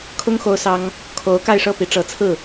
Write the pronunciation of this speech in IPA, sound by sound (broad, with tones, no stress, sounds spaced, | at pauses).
kʰ ʊ˥ ŋ x o˥ ʊ̯ s ɑ˥ ŋ | kʰ o˧˥ ʊ̯ k a˥˧ ɪ̯ ʂ ɤ˥˩ p i˧˥ ʈ͡ʂ ɤ˨˩ t͡sʰ ɹ̩˥˩